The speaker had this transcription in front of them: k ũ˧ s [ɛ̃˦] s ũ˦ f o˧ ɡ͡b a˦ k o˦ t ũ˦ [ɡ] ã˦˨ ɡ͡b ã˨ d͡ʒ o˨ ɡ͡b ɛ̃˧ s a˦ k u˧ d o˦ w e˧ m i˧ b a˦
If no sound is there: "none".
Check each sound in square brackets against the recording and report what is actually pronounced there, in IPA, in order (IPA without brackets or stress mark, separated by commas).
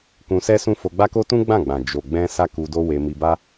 ɛ˦, ɡ͡b